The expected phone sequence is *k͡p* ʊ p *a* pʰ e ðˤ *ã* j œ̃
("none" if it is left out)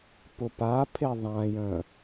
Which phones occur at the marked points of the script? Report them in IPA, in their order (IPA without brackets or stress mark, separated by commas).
p, a, ã